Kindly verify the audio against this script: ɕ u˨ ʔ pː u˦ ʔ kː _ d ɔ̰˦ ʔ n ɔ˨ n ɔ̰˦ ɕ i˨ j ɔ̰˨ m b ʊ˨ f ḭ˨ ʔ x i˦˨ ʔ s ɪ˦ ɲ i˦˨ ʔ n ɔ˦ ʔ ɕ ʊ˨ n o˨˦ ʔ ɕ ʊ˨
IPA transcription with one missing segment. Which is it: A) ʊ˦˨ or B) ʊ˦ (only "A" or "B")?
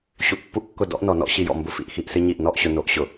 A